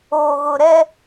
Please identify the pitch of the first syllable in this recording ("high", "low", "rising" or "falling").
low